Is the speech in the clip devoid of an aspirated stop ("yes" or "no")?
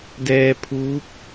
no